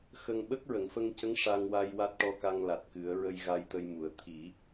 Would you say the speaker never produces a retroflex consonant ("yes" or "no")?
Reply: no